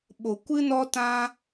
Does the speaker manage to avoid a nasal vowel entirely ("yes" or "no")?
no